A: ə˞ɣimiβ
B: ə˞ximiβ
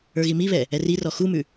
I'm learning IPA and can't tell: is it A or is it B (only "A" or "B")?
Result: A